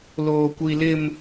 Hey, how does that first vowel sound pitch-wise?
high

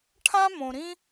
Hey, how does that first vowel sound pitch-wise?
high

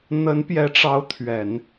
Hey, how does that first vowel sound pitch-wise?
rising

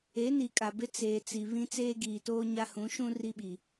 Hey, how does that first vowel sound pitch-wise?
rising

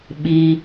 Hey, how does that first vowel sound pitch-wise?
low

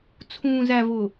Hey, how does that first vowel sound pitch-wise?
low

